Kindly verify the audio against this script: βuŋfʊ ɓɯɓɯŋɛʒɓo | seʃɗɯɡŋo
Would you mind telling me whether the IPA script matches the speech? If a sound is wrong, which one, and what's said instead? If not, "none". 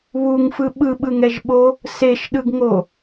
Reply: ʊ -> ɯ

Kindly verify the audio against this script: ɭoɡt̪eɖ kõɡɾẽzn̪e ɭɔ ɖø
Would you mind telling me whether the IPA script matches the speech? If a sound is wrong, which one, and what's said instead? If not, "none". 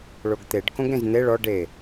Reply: ø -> e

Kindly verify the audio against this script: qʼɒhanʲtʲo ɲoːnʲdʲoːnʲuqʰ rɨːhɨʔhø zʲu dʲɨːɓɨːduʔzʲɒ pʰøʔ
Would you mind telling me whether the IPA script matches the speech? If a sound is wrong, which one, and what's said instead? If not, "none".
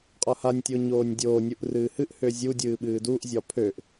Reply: qʰ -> ʔ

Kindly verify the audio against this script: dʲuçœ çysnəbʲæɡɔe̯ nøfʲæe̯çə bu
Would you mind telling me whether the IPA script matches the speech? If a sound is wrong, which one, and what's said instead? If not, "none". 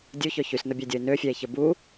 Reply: ɡ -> dʲ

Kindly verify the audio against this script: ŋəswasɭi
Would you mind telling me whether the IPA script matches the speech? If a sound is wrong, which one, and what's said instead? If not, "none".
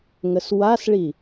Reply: none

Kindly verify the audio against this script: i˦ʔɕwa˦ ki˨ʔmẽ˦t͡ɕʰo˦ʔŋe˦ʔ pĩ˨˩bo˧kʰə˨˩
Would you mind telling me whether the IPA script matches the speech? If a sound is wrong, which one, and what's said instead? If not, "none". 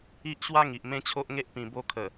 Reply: k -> ŋ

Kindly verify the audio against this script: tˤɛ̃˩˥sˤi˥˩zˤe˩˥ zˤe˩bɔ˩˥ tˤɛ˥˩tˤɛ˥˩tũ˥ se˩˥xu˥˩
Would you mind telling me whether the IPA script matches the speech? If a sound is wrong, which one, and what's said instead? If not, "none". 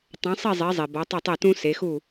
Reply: none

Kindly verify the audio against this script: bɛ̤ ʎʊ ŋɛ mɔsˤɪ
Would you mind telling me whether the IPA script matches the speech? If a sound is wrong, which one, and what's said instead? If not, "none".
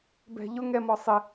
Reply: none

